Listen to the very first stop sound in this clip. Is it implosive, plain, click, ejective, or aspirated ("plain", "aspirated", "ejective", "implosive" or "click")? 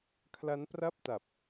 aspirated